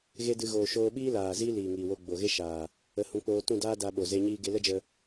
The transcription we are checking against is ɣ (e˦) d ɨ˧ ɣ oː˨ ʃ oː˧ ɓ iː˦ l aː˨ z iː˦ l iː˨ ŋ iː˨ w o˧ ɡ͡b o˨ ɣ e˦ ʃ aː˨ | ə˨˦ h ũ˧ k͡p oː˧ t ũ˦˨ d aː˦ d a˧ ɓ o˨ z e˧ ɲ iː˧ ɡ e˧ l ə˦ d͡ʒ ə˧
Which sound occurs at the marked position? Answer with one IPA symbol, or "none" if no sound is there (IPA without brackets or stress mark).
e˦